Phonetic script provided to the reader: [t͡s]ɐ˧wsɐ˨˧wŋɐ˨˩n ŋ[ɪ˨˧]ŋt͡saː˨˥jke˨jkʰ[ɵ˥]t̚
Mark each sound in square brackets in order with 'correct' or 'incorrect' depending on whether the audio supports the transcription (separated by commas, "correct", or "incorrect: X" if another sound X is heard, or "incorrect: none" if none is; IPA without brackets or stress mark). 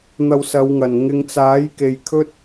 incorrect: n̪, correct, correct